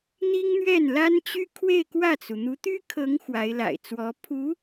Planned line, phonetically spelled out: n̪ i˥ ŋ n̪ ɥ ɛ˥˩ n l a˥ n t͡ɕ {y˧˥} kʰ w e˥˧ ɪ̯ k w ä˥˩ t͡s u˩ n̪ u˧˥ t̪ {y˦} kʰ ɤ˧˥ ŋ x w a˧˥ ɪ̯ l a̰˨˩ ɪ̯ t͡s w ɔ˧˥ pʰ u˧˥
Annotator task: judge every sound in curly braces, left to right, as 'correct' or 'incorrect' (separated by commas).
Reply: incorrect, incorrect